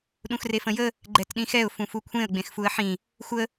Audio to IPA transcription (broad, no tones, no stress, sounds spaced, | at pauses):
ɗ ũ x r e f ə̃ j ə | ɡ͡ǃ ɛ t ɗ ĩ x ɛ ʊ̯ f ũ f u kʷʰ ẽ ə̯ ɡ͡b ẽ x f u ə̯ ħ ĩ | xʷ ə